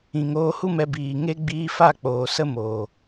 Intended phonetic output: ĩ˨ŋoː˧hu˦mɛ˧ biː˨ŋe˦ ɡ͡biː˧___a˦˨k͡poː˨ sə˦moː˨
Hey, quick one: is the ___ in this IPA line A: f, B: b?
A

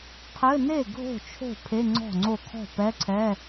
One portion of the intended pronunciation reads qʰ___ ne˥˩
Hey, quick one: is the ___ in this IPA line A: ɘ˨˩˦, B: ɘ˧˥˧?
B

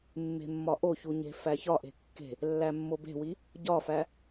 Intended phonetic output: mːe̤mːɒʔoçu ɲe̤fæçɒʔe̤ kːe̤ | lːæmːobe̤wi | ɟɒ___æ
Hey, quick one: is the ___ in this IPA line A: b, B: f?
B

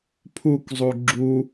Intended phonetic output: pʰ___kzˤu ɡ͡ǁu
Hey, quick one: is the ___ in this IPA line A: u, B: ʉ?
A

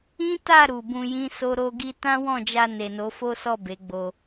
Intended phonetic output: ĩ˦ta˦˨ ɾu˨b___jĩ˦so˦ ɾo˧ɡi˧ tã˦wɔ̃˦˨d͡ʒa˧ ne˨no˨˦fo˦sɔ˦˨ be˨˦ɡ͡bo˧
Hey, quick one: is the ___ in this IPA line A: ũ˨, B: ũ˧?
B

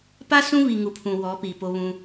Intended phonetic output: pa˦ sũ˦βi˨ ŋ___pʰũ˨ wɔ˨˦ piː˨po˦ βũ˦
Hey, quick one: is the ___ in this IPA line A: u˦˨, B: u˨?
B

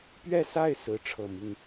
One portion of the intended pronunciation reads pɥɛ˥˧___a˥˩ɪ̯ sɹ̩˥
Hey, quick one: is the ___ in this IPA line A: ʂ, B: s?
B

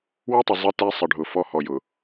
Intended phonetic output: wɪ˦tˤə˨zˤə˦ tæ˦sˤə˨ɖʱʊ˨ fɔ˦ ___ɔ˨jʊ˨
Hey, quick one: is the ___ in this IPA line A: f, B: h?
B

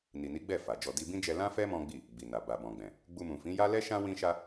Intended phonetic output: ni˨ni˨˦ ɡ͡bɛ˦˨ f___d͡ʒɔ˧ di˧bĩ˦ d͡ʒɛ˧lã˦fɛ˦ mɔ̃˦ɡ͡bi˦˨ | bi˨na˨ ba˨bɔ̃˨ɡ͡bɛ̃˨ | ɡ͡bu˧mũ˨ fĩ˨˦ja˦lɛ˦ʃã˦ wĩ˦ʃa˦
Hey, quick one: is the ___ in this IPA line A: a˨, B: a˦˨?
A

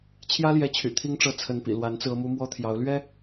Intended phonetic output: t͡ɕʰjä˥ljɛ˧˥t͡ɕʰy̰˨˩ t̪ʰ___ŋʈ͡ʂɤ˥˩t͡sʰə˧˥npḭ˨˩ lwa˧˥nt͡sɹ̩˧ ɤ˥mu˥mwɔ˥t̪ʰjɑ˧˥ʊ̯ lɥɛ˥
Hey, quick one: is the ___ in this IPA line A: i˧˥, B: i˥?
B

